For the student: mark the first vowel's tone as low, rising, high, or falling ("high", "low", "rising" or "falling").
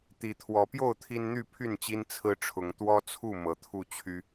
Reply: rising